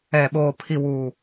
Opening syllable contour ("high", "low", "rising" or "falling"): low